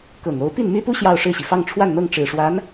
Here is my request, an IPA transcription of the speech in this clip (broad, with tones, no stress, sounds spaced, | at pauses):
k ɤ˨˩ ŋ o˧˥ ʊ̯ p i˥˩ n m y˥ p u˥ ɕ j ɑ˥˧ ʊ̯ ʂ ɻ̩˥˩ ɕ i˩ f ɑ˥˧ ŋ ʈ͡ʂʰ w a˥˧ n n̪ ɤ˥˩ ŋ ʈ͡ʂ ɻ̩˨˩ ʂ w a˧˥ n